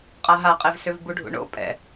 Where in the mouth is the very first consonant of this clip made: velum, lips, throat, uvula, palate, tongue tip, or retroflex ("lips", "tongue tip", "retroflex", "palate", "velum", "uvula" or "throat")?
uvula